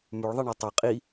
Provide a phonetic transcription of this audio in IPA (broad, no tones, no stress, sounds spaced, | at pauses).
m ʉ ɭ ðˤ e ɳ a tˤ ɛ qʼ i